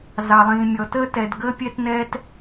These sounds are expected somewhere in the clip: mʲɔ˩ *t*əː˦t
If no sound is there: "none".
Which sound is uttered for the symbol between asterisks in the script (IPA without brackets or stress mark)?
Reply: t